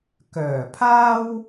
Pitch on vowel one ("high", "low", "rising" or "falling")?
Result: low